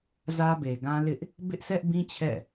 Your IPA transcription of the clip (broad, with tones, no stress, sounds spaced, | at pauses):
z ä˦ b e˨ ɡ ã˦ l ɪ˦ ʔ | b ɪ˦ ʔ s ɛ˦ ʔ b ĩ˦ t͡ɕʰ ɛ̰˦˨